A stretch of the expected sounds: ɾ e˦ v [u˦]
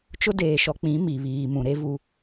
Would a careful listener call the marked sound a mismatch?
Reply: no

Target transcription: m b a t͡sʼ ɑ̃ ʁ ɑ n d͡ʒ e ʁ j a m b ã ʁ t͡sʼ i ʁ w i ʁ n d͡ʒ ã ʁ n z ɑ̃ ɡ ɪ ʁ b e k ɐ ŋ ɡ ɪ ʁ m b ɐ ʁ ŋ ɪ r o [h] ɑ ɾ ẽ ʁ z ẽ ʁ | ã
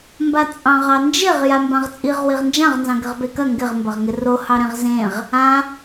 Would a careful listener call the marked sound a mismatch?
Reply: no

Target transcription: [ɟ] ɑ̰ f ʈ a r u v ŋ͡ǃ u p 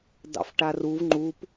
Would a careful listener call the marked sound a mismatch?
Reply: yes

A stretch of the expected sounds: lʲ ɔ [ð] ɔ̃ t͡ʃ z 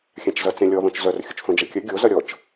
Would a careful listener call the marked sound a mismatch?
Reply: no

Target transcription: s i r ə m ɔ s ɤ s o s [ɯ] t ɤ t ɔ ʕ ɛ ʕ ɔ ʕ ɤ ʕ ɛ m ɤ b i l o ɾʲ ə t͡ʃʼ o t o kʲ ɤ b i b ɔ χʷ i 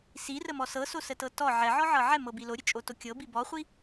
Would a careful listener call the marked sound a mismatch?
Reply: yes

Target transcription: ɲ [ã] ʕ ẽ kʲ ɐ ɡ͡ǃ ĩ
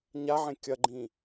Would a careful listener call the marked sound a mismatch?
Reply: yes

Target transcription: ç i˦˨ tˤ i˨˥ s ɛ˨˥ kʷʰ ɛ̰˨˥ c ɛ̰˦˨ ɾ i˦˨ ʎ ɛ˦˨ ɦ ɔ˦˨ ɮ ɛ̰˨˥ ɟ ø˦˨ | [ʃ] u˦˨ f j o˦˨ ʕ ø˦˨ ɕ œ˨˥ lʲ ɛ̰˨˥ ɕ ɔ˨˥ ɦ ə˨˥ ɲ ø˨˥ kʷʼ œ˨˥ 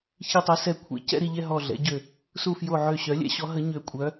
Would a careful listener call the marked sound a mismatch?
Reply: yes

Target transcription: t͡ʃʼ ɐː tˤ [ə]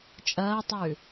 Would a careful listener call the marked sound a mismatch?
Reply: yes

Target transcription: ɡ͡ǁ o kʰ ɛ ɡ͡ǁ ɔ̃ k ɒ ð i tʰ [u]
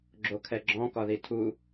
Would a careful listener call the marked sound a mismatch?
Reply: no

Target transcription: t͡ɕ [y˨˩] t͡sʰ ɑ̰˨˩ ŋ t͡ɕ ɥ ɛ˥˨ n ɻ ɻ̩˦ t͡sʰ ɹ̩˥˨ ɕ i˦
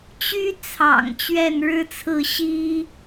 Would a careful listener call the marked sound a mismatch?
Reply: yes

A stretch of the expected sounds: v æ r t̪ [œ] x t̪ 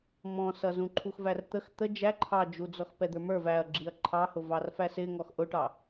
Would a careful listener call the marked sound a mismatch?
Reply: yes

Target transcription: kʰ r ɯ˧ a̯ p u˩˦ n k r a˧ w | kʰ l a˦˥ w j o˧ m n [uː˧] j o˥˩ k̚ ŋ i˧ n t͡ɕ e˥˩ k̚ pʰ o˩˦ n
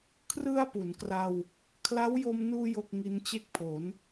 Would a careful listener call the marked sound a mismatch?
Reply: no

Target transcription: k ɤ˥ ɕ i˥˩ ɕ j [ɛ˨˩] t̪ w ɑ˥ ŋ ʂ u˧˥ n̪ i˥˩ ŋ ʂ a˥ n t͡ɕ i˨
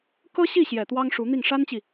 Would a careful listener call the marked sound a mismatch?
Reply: no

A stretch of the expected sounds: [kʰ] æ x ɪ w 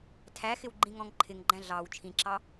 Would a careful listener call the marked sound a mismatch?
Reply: yes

